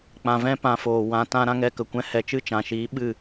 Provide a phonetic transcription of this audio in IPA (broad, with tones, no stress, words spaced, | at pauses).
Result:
k͡pã˧vɛ̃˦pã˧ foː˨ wã˧tã˦ ɾã˦ŋɛ˧kə˨ kʷɛ̃˦hɛ˧ t͡ʃɨ˦˨t͡ʃã˨ʃiː˨˦ ɓɨ˦˨